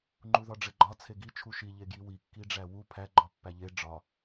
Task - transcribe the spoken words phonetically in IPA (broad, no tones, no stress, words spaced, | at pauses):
ŋ͡ǃuðɒɖ͡ʐeɡ͡ǃɒ t͡sʰeɡi t͡ʃʰuʃi ʎeɡjiwi kːiɖ͡ʐæwu pʰæ ɡ͡ǃɒpːæʎe ɖ͡ʐɒ